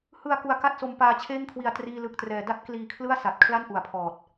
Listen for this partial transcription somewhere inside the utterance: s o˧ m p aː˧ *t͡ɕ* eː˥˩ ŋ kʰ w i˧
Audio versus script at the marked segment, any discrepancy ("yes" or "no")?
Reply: yes